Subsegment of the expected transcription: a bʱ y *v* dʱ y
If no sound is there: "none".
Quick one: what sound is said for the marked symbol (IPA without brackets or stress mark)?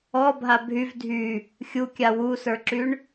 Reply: v